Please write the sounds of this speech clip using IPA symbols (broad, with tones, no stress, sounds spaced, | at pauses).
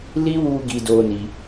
l i˦ w u˧ ɡ i˧ d o˧ n i˧